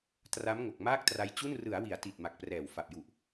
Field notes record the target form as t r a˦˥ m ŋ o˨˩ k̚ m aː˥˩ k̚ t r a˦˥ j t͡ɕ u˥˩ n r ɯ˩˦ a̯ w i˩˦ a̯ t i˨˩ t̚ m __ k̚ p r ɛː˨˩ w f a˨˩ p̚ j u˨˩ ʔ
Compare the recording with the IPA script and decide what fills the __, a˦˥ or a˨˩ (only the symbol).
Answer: a˨˩